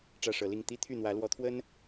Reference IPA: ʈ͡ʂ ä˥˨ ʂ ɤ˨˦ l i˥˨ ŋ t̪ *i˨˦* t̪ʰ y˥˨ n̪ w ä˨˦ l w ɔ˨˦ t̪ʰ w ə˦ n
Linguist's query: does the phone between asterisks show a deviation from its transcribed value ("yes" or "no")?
yes